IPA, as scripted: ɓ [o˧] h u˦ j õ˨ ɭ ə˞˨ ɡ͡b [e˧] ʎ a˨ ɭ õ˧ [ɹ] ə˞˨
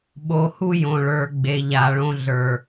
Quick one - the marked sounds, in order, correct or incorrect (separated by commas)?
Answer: correct, incorrect, incorrect